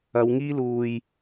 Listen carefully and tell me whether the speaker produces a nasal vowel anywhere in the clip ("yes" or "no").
no